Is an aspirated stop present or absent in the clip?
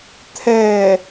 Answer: present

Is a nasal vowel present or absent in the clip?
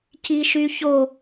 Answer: absent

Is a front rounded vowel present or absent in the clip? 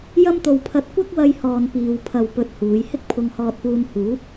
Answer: absent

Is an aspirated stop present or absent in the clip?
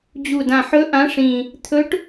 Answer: present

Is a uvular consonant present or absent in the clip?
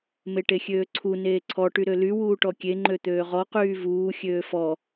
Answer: present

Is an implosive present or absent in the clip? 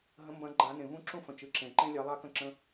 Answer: absent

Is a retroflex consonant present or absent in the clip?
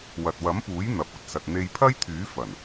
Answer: absent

